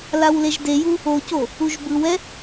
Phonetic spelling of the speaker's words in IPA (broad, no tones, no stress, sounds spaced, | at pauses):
l a w l e ʒ d e j u | o c o | u ʒ b ɯ w ɛ